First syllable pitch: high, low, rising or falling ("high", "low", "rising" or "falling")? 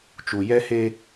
low